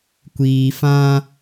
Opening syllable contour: low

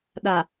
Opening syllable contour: low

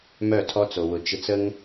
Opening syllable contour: falling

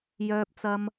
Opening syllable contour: high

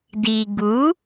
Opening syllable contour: low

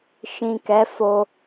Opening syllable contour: low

